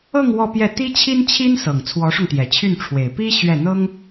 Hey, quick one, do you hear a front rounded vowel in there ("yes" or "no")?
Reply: yes